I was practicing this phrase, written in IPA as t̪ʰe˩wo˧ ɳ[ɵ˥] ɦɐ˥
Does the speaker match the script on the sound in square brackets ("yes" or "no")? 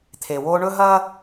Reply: yes